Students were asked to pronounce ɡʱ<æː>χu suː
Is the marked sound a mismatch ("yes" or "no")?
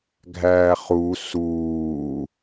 no